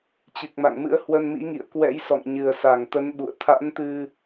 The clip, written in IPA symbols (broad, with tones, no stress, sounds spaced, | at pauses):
t͡ɕ ɨ˨˩ k̚ m a̰˧˨ ŋ m ɨ̰˧˥ ə̯ h w ə˧ n m ḭ˧˥ ŋ ḭ˧˨ ə̯ k w ɛ̰˧˥ j s ɔ̰˧˨ ŋ ɲ ɨ˨˩ ə̯ s a˧˩ ŋ t̪ ə˨˦ n ɓ ṵ˧˨ ə̯ t̪ʰ a̰˧˥ n t̪ ɨ˧